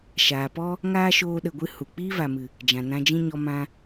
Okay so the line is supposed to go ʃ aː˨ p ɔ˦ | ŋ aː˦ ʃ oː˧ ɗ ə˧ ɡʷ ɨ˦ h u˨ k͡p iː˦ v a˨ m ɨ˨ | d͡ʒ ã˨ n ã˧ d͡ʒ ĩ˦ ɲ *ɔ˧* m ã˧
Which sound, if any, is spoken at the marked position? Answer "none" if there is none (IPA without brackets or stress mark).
ɔ˧